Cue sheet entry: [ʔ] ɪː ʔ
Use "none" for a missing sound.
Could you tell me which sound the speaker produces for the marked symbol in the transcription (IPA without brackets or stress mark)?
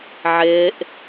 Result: ʕ